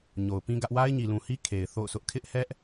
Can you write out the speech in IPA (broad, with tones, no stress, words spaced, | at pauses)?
ɲo˨ʊ̯pĩ˦ɡä˦ʔ wa˦ɪ̯ɲi˨lũ˨hi˦ kʰe˨ɪ̯ θo̰˦˨ʊ̯sʰʊ˦ʔ kʰɪ˦ʔhɛ˦ʔ